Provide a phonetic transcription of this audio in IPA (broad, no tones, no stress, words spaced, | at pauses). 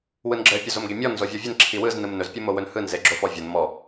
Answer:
wɯnɡ͡ǁɘ pʲɵzomɡemʲɔn zovʲɔvʲɘn ǁʰiwɯz nɯmnɵz pʲɯmowɵnhɯn zeɡ͡ǁofɔvʲon mɔ